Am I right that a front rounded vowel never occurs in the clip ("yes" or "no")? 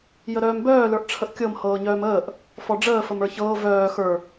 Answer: no